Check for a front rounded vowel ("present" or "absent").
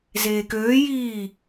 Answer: present